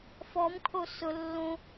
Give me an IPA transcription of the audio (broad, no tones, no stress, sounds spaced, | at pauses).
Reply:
f ɔ m kʰ o s ʊ lː õ